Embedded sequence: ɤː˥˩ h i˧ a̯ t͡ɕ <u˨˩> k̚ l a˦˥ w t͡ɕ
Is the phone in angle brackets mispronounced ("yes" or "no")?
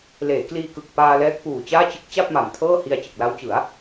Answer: yes